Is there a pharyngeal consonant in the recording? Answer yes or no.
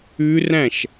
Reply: no